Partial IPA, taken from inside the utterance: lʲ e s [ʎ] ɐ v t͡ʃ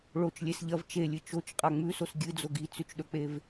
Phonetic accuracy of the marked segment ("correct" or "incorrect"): correct